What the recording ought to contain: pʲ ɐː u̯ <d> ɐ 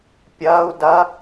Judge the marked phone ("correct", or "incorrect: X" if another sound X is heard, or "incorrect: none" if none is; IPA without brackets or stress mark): correct